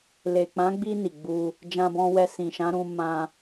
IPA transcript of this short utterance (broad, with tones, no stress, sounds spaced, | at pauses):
l e˨ k͡p ã˨˦ ɡ͡b i˧ n i˨ ɡ͡b u˧ | d͡ʒ ã˧ b ɔ̃˧ w ɛ˧ s ĩ˨ ʃ ã˨˦ ɾ ũ˧ m ã˧